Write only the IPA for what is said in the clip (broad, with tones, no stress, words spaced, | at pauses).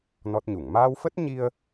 nɔ˦˥t̚ɲu˧˩ŋ maː˧wfə˦˥t̚ ɲi˧ə̯